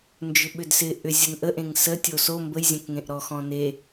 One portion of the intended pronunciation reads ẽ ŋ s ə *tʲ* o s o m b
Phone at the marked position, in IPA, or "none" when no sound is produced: tʲ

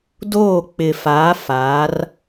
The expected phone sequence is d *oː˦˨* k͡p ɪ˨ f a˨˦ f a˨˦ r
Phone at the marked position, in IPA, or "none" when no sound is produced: oː˦˨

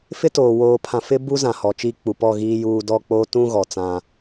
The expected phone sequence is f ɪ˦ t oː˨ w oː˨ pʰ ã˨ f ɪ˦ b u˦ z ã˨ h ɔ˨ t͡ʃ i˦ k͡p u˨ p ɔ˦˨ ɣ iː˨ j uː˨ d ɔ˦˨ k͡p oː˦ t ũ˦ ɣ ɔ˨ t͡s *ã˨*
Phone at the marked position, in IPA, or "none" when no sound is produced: ã˦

